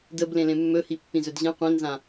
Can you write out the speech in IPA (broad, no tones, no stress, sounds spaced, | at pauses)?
d ə b l ẽ l ẽ mː ɵ h i pː ĩ z ɵ d ʑ ɛ̃ qʷ ẽ n z ã